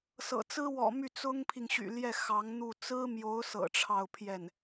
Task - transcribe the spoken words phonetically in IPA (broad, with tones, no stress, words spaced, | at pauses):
sɤ̰˨˩t͡sɹ̩˥ wɔ̰˨˩ my˥˩ t͡sʊ˥ŋpʰi˨ŋɕy̰˨˩ljɛ˥˩ xɑ˧˥ŋn̪u˥˩ t͡sɹ̩˥mjo˧˥ʊ̯sɤ̰˨˩ ʈ͡ʂʰɑ˥˧ʊ̯pʰjɛ˥˩n